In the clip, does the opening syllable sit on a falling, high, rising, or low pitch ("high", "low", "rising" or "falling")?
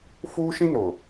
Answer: high